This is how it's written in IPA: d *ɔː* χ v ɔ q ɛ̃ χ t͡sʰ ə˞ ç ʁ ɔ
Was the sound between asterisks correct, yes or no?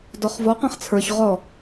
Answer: no